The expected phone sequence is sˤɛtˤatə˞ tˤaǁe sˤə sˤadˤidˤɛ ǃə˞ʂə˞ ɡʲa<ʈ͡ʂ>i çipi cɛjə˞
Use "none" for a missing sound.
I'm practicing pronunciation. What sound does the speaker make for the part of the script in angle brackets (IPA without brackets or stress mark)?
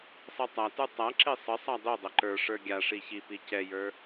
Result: ʂ